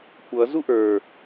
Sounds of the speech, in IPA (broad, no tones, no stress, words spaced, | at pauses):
kʷʌ zuʔə˞